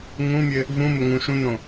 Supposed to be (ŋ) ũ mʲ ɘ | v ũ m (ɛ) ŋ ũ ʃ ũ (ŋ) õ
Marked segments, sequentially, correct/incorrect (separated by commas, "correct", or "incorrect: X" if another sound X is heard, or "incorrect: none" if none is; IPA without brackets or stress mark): correct, incorrect: ɘ, incorrect: n